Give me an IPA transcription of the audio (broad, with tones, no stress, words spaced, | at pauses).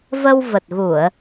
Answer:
və˧wvə˨˩t̚ɣu˧˩˨ə̯